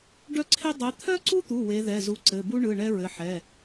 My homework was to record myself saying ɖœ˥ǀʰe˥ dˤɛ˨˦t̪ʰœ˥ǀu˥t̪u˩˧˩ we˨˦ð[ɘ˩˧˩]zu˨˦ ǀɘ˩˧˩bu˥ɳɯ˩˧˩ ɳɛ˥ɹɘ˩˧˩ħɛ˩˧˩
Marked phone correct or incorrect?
incorrect